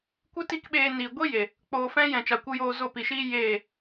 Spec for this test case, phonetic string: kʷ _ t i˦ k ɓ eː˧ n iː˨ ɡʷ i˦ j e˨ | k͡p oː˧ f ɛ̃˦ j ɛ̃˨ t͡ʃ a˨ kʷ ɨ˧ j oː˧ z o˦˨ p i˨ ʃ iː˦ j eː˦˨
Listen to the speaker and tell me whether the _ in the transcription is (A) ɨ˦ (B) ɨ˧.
A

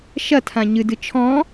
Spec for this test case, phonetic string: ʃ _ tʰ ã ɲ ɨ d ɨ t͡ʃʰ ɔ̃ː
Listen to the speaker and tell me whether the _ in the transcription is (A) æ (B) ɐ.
B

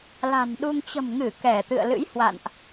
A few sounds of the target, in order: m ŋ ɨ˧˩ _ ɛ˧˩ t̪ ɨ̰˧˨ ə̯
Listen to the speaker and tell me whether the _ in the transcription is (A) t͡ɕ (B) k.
B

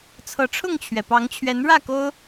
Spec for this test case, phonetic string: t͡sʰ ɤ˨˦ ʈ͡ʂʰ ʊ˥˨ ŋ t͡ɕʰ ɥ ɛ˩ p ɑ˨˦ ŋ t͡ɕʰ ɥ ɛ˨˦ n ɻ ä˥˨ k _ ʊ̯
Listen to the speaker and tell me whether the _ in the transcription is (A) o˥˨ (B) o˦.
B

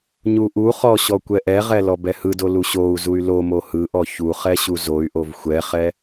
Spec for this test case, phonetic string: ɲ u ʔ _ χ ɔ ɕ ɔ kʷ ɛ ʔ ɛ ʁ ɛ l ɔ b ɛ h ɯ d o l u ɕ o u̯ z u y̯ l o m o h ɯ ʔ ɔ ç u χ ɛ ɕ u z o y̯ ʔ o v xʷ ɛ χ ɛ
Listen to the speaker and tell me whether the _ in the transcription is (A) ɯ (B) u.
B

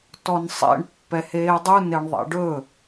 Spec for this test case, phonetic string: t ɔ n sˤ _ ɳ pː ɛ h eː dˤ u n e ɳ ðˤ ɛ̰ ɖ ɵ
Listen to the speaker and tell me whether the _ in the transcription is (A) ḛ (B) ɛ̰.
A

